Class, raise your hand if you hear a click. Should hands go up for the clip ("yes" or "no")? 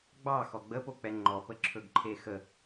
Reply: yes